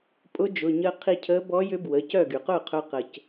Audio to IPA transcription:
pʼʊ˧˥ d͡ʒʊ˩˧˩ ɲəː˧ qʰi˧cʰəː˧˥ bɔ˧˥jʏ˧˥bwə˩˧˩cœ˥˩ ɡy˩qʊː˥˩qʰœ˧ qə˧c

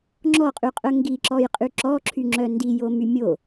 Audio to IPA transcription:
ŋ͡ǁɔqʼyqʼœ ŋɡiǁɔjqʼy ǁɔǁʰyŋ͡ǁœ ndijomy mʲo

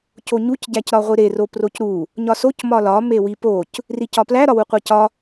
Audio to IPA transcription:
coɲuc ɟæcɾɒʁʷiɾe roprocɾu | ɲɒsoc mɒlɒ mewipoc | ricɒplæ ɾɒwuqʷecɒ

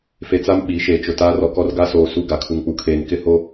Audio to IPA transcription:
fe˨t͡sa˦m ɓi˨˦ʃeː˨t͡ʃʊ˨taː˦r ɔ˨kɔ˦rɡa˦soː˨ su˦˨ɡa˨ kʰu˨ŋk͡pu˨kʰeː˨n kɪ˦ho˦

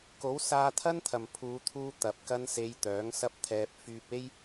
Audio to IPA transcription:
ko˨˥wsaː˧ t̪ʰɐ˥nt̪ʰɐ˨mpʰuː˨˧t̪ʰuː˧ t̪ɐ˨p̚ kɐ˥nse˧j t̪œː˨˥ŋsɐ˥p̚t̪ʰɛː˧p̚ fyː˧p̚e˥j

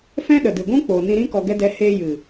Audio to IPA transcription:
fɛ̃˦ɗə˨dɨ˨ɡʷũ˦ k͡po˨nĩ˧ɾĩ˦ kɔ˧ɡɛ˦dɛ˧ he˧jɨ˨

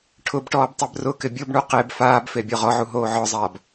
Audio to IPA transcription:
ʈʰʊbʈɔːb tˤɛbrʊkɪ bʲobɳu qeb faːbfe bʲɔʁɔʕu ɦoːʕɔzˤaːb

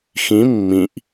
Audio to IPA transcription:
xĩ mːĩʔ

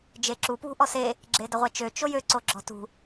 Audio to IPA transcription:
d͡ʒeǁu pwṳʔɔse | ɡ͡ǁedɐʁʷɛt͡ʃø t͡ʃojø ǀoɡ͡ǁɔ̤tṳ

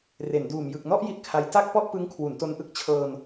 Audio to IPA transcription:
re˩˦nduː˨˩m jɯ˨˩k̚nɔ˥˩ʔ ji˥˩t̚kʰa˦˥j ta˥˩k̚pɔ˥˩ʔ pɯ˦˥ŋkʰwu˩˦nto˧nʔɯ˥˩k̚ t͡ɕʰɤː˧n

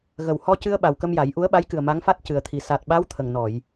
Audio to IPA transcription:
ɣə˨˩w hɔ˧cɨ˧ə̯ ɓa˨˩wkə˧mja˨˩˦j ʔu˧˥ə̯ɓa˧˥jkɨ˨˩ə̯ ma˧˥ŋfa˦˥t̚cɨ˨˩ə̯t̪ʰi˨˩ sa˨˩t̚ɓa˧˥w t̪ʰə˨˩ŋnɔ˨˩˨j

